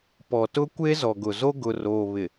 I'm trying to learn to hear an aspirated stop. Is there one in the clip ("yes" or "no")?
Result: no